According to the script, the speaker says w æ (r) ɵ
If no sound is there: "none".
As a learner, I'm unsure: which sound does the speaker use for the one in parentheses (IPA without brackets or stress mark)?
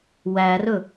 r